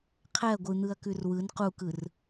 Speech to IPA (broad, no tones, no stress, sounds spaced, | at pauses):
qʰ ɛ ɐ̯ ɡʷ ɯ n̪ ɯ ɐ̯ k ʉ r w ɯ n q u k ɯ r